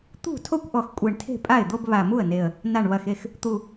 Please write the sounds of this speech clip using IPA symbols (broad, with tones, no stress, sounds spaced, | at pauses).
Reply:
t̪ ṳ˥˩ tʰ o˥˧ kʷ ʔ ɔ˨˩ x kʷʼ e˨˩ ɳ tʰ e̤˥˩ pʼ a˥˩ ɪ̯ d̪ o˥˧ b β a˨˩ m u˥˩ ə̯ n e˨˩ ə̯ | n a˨˩ ɳ β ɐ˨˩ x e˥˩ x | t̪ u˨˩